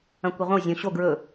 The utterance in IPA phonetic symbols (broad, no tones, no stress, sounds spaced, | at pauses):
ɐ̃ kʷ i ʁʷ ɐ̃ w zʲ õ ɕ o ɡ ɹ ɵ